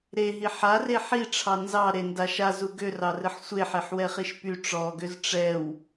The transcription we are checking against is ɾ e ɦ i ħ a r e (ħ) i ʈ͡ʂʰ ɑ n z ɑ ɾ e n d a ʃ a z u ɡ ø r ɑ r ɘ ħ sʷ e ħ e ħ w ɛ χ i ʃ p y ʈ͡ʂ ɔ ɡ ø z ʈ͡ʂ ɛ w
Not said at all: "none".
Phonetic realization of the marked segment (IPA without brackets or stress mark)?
ħ